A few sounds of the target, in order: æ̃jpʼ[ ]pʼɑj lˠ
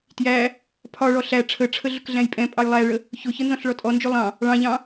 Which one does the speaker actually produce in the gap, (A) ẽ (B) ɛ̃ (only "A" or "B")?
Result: B